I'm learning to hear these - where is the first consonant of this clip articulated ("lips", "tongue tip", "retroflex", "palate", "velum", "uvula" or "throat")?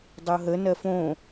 tongue tip